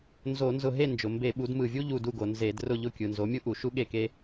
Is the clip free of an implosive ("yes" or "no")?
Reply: no